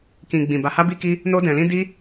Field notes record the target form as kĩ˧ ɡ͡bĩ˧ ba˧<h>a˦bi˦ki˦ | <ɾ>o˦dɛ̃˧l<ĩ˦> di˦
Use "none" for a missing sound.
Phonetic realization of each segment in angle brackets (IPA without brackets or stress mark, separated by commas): h, n, ĩ˦